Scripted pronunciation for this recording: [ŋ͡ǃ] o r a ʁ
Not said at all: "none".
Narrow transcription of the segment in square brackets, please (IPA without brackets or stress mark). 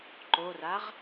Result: ǃ